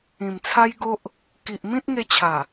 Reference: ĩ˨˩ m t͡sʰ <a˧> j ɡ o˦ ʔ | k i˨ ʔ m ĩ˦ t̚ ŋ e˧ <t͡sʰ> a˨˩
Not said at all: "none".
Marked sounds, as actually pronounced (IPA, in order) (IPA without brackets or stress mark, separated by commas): a˦, t͡ɕʰ